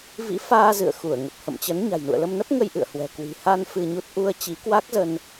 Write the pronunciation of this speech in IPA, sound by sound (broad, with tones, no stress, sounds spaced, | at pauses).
v ḭ˧˥ f aː˧ z ɨ̰˧˨ ə̯ x u˧˩ ə̯ ŋ ə˨˩ p̚ h ə̰˧˨ m t͡ɕ ə˨˦ n ɲ a̤˨˩ j n ṵ˧˨ ə̯ l ə˧ m n ə˦˥ p̚ ŋ ə˧ j ʔ ɨ̰˧˨ ə̯ h w ɛ̤˨˩ k w i̤˨˩ h a˧ n f ɨ˧ ɲ u˦˥ t̚ ʔ u˧ ə̯ t͡ɕ i˨˦ k w a˦˥ k̚ z ə˧ n